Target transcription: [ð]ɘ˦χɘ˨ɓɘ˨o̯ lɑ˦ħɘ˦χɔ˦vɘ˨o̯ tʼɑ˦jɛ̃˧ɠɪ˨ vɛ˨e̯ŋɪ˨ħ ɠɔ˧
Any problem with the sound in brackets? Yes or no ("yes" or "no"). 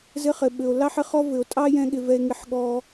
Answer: yes